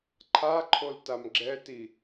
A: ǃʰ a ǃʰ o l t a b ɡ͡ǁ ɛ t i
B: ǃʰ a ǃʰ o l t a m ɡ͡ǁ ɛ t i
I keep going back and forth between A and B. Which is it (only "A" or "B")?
B